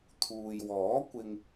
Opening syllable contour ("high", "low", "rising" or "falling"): low